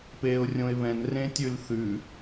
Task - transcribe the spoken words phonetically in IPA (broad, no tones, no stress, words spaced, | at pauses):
peːʊ̯rʲõɪ̯βɛ̃n rẽtʲʉlθʉ